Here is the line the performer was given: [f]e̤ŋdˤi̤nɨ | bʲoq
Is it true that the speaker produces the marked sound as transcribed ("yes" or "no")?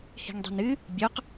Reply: no